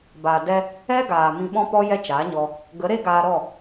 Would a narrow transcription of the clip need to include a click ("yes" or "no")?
no